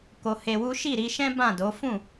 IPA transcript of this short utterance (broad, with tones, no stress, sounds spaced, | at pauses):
k o˧ h e˧ w u˦ ʃ i˦˨ ɾ i˧ ʃ ɛ̃˦ b ã˦˨ d o˨˦ f ũ˦˨